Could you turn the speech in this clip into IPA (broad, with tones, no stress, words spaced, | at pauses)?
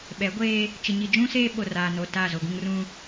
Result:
ɓɛ˨˦ɡʷeː˦ | t͡ʃɪ˨ɲi˨d͡ʒũ˦seː˦ ɓo˨raː˨no˨ ta˦˨zo˨ɡũ˦ŋ rũ˦